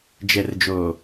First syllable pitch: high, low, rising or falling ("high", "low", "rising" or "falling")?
low